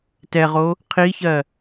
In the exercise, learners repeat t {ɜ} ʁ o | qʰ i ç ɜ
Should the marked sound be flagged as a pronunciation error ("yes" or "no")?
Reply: yes